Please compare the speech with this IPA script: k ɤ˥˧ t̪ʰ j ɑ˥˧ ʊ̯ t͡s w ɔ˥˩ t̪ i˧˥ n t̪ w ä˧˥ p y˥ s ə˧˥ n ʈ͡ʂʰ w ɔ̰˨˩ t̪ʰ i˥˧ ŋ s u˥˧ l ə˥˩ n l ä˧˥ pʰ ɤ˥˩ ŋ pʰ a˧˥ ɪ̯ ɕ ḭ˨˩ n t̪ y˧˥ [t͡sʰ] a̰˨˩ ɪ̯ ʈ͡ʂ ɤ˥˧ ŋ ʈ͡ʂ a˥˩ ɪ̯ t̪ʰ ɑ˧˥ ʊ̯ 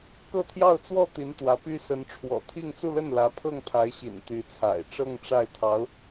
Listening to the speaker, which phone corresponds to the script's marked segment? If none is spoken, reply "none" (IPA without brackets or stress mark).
t͡sʰ